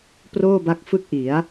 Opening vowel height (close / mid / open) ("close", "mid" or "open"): mid